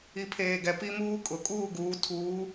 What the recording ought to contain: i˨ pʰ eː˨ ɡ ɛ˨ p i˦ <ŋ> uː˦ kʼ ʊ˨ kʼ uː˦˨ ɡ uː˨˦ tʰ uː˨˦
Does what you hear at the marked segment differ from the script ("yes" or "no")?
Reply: yes